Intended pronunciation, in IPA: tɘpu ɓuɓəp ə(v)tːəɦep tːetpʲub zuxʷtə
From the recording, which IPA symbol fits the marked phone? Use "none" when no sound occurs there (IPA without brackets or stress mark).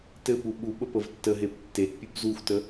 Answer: v